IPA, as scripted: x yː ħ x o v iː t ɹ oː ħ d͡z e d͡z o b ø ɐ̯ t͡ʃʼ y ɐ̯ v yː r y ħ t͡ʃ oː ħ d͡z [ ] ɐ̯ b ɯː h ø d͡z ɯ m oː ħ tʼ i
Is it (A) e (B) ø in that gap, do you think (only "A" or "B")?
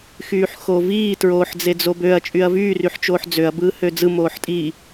B